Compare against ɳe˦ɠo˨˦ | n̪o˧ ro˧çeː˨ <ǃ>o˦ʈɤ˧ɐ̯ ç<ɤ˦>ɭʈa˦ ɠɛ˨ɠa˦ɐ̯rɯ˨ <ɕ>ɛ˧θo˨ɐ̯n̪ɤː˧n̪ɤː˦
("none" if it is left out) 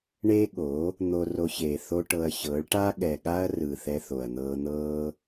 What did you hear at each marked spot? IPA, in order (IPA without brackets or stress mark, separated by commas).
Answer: θ, ɤ˨˦, θ